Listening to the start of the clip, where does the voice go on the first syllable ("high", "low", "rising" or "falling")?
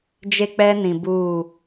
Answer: high